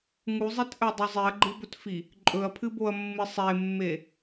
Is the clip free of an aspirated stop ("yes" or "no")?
no